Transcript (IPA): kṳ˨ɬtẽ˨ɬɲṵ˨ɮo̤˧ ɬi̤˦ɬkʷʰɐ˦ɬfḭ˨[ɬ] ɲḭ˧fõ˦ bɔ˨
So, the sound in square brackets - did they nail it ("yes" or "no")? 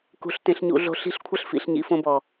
yes